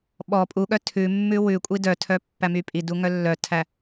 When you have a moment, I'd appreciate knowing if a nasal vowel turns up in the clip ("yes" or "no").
no